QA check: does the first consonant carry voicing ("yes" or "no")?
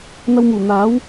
yes